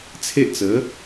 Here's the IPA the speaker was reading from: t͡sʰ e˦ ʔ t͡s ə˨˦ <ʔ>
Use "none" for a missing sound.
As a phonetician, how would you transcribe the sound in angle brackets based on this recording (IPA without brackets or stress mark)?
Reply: none